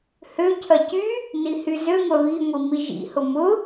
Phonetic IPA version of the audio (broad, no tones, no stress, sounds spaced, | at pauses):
h ø cʰ ɐ c y | n i h y z ø ŋʷ œ β i ŋʷ i m i ʒ ḭ h ʊ m ʊ